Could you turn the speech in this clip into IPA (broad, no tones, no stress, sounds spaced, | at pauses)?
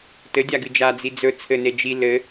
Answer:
t ɘ dʲ a ɡ ɨ d͡ʒ a d͡z i d͡z ɵ t͡sʰ ɘ n e d͡ʒ i l ɘ